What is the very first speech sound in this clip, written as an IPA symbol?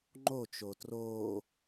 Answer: ŋ͡ǃ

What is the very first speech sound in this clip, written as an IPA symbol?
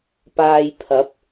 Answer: p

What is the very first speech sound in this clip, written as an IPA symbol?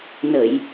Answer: n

